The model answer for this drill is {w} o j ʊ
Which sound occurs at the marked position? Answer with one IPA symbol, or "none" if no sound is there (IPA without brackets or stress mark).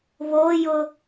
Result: β